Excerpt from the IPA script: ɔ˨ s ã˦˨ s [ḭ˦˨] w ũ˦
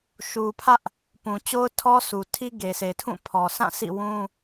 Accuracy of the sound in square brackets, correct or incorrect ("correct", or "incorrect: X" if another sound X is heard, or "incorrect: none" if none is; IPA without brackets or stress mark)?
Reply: correct